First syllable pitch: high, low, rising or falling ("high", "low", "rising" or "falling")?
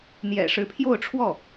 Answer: low